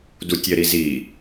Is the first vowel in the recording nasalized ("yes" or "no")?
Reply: no